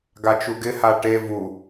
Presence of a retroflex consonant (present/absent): present